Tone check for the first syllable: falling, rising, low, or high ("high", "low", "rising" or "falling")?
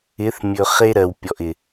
rising